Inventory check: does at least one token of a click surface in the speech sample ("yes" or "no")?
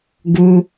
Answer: no